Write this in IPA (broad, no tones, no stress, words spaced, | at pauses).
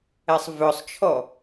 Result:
ɛsˤvœsˤt͡ʃʰɔ